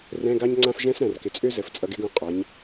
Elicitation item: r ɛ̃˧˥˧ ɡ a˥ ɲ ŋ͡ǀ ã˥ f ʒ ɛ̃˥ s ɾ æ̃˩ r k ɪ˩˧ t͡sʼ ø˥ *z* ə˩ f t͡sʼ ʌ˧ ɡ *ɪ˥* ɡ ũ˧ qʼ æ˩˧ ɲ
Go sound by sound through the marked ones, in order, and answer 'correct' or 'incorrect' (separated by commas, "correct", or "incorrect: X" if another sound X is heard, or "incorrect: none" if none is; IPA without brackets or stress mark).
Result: correct, correct